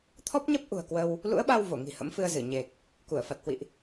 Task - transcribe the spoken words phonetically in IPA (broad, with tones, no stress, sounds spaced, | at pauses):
t̪ʰ ɔ˦˥ p̚ ɲ ə˦˥ p̚ ʔ ṳ˨˩ ə̯ k w ə˧ w | l ṵ˧˥ ə̯ ɓ a˧ w v o˧˩ ŋ i̤˨˩ h ə̰˧˥ m f ɨ˧ ə̯ z ɨ˧˩ ɲ e˨˩ k̚ | k u˧˩ ə̯ f a˨˩ t̚ h w ḭ˧˨ ʔ